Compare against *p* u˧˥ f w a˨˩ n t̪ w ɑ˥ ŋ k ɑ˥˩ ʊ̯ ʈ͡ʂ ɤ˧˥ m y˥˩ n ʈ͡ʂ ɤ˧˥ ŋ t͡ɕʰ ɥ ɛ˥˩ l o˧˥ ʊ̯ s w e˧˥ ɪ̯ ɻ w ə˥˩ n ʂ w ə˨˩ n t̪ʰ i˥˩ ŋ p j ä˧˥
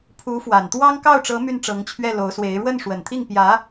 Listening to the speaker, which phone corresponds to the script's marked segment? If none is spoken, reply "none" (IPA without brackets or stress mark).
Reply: pʰ